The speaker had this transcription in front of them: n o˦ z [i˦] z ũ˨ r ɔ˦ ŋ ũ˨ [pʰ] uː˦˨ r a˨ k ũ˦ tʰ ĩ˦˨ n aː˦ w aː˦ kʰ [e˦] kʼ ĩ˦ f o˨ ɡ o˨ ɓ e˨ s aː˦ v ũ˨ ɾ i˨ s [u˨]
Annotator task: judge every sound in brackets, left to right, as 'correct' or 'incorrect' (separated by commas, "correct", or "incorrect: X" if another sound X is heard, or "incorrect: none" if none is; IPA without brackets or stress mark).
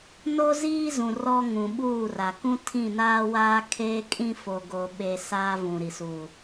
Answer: incorrect: iː˦, incorrect: ɓ, incorrect: eː˦, correct